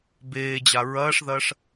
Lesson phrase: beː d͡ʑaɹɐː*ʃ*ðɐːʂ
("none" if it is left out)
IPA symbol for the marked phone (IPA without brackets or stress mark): ʂ